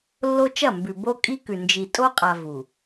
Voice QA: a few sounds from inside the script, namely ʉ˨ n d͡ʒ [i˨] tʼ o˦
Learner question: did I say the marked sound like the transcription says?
yes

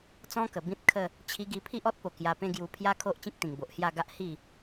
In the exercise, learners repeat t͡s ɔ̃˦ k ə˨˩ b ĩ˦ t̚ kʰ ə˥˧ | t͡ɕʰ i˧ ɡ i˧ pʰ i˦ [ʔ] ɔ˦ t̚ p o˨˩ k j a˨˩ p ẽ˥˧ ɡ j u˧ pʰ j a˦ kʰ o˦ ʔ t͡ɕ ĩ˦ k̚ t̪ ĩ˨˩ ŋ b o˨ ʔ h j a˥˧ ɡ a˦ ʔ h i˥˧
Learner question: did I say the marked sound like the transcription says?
yes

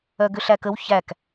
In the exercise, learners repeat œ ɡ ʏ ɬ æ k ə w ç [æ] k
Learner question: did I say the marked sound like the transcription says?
yes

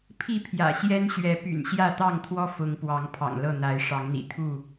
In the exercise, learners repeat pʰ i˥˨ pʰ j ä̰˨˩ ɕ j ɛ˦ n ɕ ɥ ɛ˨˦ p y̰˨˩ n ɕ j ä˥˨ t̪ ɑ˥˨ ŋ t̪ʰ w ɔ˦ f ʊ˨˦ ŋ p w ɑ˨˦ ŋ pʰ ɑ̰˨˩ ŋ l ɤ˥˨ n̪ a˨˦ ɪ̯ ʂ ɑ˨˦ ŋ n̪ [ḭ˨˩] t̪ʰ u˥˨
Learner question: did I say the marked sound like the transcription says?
yes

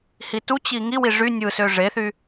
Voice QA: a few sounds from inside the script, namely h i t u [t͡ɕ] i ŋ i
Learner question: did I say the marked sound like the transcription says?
yes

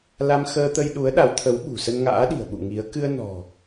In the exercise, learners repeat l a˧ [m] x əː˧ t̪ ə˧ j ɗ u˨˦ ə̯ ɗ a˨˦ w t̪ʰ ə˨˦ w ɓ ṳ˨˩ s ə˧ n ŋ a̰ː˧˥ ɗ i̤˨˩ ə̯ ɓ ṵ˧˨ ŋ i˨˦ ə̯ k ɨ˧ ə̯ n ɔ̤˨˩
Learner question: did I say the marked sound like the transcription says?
yes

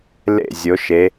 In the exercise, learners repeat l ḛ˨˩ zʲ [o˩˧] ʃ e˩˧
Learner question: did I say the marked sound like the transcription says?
yes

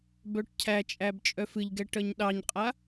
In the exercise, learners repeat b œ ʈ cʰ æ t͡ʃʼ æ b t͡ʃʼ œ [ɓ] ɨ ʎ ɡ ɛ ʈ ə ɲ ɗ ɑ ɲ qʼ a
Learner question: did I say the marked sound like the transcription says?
no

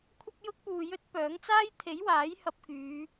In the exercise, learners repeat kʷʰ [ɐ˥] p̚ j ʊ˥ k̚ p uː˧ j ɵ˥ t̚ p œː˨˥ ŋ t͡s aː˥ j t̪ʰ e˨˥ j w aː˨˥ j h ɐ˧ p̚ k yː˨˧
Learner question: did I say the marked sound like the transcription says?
yes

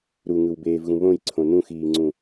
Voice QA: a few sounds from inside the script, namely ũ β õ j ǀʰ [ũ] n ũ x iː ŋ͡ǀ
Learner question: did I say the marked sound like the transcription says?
no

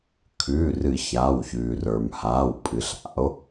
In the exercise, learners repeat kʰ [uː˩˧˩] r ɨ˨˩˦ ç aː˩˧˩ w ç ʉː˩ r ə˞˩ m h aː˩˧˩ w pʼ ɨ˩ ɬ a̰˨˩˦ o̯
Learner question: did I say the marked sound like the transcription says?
no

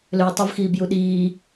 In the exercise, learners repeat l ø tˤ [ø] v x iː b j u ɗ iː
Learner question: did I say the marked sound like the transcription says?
no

